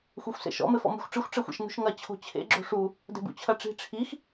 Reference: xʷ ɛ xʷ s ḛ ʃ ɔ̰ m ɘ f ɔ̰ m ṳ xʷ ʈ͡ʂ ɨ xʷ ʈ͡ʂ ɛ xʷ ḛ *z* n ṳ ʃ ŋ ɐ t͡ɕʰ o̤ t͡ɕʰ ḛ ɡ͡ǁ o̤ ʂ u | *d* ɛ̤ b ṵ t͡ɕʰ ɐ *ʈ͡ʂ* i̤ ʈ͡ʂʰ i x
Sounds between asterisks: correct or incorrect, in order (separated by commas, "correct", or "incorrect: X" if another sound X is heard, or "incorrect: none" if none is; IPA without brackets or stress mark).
incorrect: ʃ, correct, correct